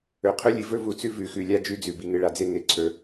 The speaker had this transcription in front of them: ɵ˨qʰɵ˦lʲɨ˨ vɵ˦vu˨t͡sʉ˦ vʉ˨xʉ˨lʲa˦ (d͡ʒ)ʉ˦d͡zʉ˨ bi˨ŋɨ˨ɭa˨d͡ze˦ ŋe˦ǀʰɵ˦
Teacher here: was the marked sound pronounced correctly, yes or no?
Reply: yes